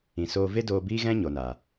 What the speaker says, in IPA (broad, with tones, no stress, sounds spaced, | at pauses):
ĩ˨ s oː˧ v e˦ d oː˧ b iː˦ ɣ ɛ̃˦ ɲ o˨ n a˨